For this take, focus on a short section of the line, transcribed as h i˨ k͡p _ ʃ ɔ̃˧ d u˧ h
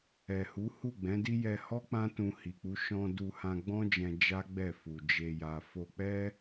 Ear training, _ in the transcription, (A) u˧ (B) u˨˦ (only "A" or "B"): B